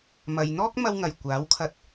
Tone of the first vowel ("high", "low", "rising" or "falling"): low